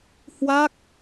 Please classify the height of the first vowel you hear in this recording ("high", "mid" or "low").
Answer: low